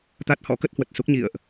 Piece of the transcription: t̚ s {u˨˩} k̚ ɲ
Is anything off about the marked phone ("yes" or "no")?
yes